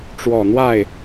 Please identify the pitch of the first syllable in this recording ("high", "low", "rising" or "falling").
low